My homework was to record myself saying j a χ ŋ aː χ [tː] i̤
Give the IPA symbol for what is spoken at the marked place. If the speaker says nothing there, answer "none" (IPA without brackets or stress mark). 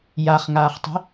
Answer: tˤ